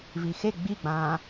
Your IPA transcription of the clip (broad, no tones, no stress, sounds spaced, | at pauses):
v i x e ɡ͡b i ɡ͡b ãː